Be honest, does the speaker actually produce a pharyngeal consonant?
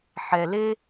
yes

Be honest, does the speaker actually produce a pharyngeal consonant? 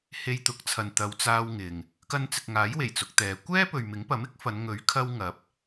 no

